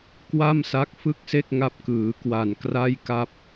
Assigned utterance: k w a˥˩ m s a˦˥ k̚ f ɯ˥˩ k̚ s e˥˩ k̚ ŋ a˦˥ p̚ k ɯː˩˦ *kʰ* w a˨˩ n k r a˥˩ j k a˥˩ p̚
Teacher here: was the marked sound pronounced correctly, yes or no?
no